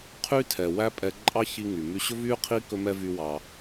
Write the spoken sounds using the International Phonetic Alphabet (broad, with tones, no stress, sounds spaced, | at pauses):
qʰ y˥ tʰ ɛ˩ w æ˥ pʼ ɛ˧ ǃʼ ɑ˥ ç i˧ ŋ y˩ m y˧ ɕ ɵ˥ v y˥ qʰ i˥ k ɵ˥ m ɛ˥ v y˧ w ɑ˩